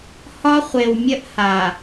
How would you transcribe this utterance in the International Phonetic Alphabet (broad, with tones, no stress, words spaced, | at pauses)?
hɒ˦χʷe˨wmʲə˦ʔ ha˨